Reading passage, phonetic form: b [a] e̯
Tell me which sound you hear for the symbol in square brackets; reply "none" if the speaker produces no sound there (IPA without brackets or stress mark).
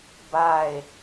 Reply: a